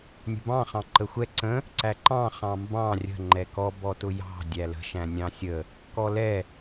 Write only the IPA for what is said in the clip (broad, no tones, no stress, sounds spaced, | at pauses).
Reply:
nʲ ə̤ b ɑ̃ χ ɑ̃ ǃ ə xʷ ɛ ǀ ə̃ | ǀ æ ǃ ɑ̃ χ ɑ̃ m b ɑ̃ rʲ ə̤ ŋ͡ǃ ɛ k ɔ b ɔ t ʊ j ɑ̤ dʲ æ l ə̤ ʃ æ̃ nʲ ɑ̃ sʲ ə | k ɔ l ɛ